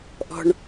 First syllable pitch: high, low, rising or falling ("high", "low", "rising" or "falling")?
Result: low